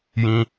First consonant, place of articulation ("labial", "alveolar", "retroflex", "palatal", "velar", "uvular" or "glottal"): palatal